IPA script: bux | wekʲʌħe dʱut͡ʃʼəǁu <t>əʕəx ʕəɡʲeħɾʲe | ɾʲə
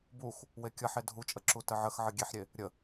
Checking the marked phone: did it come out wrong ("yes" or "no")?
no